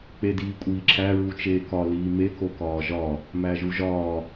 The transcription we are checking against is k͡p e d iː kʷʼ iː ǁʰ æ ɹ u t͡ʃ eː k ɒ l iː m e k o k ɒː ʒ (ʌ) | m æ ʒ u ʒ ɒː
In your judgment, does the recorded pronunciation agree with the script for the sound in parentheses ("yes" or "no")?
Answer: no